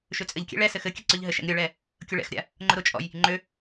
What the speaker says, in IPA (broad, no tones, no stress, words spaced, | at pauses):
ʃøt͡sʼɘʎkʲɛ̰ ɭɛ sɘxɘkʲɘ ǀøʎɦɘʃɛ̰ŋ ɾʲʊɭɛ | kʲʊɭɛ̰xɾʲa̰ | ŋ͡ǃʊɾʊt͡ʃʼɔ̰j | ŋ͡ǃø